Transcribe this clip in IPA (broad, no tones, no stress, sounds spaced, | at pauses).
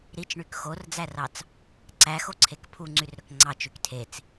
ɾ i t͡ʃ ɳ y k x o r d͡z æ r ɑ t͡s | ǀ æ x o ǀʰ e k pʰ u ŋ͡ǀ y r ɾ ø k ŋ͡ǀ ɑ t͡ʃ y k tʰ e t͡s